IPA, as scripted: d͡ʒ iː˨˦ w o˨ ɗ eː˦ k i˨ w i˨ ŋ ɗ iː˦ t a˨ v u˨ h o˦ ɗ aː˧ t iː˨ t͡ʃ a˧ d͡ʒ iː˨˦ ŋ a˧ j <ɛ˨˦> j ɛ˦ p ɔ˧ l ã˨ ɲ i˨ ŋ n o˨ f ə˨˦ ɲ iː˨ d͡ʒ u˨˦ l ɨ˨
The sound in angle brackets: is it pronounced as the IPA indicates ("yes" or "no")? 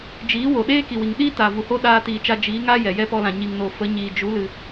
no